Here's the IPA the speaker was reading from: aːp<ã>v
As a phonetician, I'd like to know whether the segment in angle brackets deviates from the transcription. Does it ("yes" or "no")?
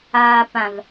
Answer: no